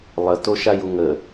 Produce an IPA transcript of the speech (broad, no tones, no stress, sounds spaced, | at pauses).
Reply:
lˠ ə t o ʃ a j u ŋ ə